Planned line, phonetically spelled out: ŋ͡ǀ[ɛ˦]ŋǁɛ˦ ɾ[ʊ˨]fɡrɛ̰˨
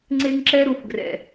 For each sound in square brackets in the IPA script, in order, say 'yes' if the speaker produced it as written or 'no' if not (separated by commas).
no, no